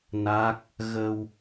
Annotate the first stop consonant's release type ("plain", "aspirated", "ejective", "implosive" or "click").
plain